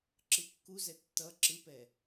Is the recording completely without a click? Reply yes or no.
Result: no